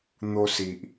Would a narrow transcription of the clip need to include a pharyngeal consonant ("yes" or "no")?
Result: no